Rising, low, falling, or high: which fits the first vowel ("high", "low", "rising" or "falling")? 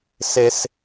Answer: high